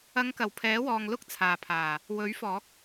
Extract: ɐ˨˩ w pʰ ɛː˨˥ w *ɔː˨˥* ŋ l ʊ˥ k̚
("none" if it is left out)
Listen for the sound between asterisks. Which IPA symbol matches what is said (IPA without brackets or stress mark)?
ɔː˨